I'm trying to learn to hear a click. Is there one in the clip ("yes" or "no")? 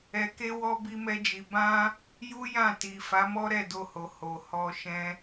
no